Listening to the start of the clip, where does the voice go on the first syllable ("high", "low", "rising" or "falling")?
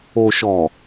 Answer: low